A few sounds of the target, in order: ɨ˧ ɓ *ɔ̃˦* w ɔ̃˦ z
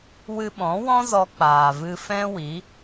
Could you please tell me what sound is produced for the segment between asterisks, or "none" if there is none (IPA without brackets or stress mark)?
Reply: ɔ̃˨˦